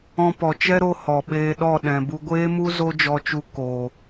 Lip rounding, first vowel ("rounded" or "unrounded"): rounded